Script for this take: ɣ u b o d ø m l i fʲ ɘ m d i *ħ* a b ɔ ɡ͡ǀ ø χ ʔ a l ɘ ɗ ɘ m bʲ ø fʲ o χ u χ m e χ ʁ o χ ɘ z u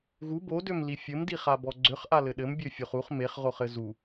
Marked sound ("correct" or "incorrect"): incorrect